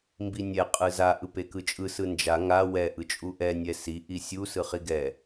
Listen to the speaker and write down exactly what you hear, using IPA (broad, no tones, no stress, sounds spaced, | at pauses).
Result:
m b i nʲ ɛ qʼ ɯ z a ʔ ɯ p e k ɯ t͡ʃʼ ɯ s ɯ n d͡ʒ a ŋ a w ɛ ʔ ɯ t͡ʃʼ u ʔ ɛ nʲ ɛ s i ʔ i sʲ u s ɯ χ i ɡ ɛ